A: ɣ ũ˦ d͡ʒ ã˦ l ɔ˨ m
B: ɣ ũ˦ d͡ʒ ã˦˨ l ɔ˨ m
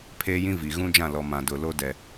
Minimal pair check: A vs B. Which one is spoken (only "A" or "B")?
B